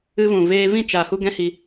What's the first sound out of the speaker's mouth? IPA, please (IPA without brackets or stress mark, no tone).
ɨ